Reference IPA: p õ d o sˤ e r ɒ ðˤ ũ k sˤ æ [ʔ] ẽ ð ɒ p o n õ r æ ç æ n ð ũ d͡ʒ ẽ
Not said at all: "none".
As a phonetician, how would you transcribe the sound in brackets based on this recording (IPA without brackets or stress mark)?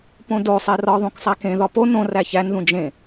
k